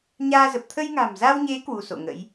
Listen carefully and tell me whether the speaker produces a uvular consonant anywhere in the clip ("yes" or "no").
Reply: no